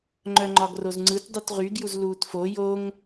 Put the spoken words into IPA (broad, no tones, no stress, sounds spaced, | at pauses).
ŋ͡ǃ œ ŋ͡ǃ ɒ ɡ r o z ŋ͡ǀ ɯ t dˤ u t ʁ y ɡ j u z l uː t f o j o ŋ